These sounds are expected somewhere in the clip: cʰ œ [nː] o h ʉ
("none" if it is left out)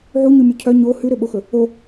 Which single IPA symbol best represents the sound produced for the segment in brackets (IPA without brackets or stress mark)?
ɲ